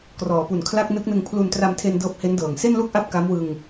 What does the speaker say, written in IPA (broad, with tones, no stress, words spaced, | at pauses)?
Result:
krɔː˩˦pu˨˩n kʰla˥˩k̚ nɯ˦˥k̚nɯ˧ŋ pʰlu˧n tra˧mtʰe˧n dɤː˦˥p̚he˦˥ndɤː˨˩ŋ se˥˩nlu˥˩k̚ʔa˦˥p̚ ka˦˥mwɯ˧ŋ